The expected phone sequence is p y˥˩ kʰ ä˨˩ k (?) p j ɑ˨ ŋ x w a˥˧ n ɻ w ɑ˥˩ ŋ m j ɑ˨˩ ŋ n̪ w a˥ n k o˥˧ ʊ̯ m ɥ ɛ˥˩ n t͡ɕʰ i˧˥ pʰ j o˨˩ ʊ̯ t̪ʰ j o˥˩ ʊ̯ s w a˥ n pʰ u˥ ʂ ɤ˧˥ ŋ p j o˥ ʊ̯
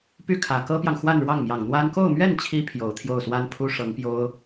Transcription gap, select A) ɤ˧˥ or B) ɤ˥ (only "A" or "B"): B